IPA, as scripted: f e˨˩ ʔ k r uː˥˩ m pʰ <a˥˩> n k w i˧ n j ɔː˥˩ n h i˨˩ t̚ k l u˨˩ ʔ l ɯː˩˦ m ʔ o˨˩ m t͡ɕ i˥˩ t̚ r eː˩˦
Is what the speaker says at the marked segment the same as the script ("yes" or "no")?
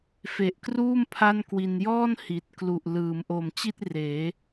yes